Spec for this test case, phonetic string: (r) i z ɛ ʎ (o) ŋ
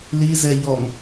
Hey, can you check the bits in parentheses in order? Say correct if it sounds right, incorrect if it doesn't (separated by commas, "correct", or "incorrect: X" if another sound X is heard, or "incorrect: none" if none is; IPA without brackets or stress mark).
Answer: incorrect: l, incorrect: ɔ